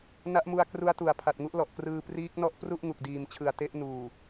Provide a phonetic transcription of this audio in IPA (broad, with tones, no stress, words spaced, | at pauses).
na˦˥ʔmu˧a̯ kru˦˥a̯tu˨˩a̯ pʰa˨˩t̚ŋu˦˥ʔlɔ˨˩ʔkrɯː˧ priː˦˥k̚nɔ˥˩ʔ pru˥˩ʔŋu˨˩k̚ diː˨˩mt͡ɕʰɯ˨˩a̯ te˦˥ʔnuː˨˩